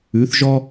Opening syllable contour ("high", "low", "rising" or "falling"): rising